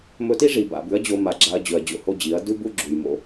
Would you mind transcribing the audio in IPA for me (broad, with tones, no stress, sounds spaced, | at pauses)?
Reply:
m ɵ˧ t i˦ ʐ i˨ b a̰˨ b ʉ˨˦ ɐ̯ d͡ʑ o˧ m a˨ ɡ͡ǁ a˧ ɐ̯ d͡ʑ ɵ˨ ɐ̯ d͡ʑ o̰˧ h o˦ d͡ʑ i˨˦ ɐ̯ d ʉ˦ b u˦ ɡ͡ǁ u˨ j m o̰˧